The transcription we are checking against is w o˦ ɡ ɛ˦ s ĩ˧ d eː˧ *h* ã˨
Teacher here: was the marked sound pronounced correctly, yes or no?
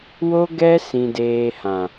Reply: yes